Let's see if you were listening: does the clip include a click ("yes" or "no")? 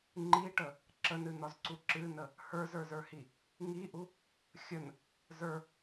yes